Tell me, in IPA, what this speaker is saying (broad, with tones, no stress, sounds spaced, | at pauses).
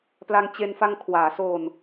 p l a˧ ŋ t͡ɕ e˧ n f a˧ ŋ kʰ w aː˩˦ s oː˧ n